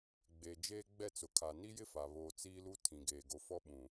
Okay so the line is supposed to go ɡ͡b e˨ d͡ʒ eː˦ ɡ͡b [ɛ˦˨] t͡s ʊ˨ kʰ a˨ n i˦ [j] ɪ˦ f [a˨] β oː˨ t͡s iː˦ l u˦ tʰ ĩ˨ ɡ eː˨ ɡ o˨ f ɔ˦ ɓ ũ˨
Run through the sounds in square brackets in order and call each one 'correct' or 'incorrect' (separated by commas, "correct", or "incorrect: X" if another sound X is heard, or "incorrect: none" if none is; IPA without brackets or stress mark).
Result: correct, correct, correct